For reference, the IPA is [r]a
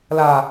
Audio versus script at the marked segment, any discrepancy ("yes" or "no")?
yes